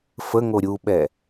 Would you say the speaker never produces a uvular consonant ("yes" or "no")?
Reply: yes